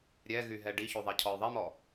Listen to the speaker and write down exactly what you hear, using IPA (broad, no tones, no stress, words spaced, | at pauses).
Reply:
ɾʲɛɣy ɦɛɖiçy ðˤicʰɔjðˤemɔ